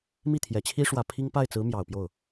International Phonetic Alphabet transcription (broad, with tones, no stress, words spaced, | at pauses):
mi˥˩t̪ʰjɛ˨˩t͡ɕʰi˥ ʂwä˨˩ pʰi˥ŋ pa˥˩ɪ̯t͡sɹ̩˧˥ mjɑ˨˩ʊ̯pjo˥˩ʊ̯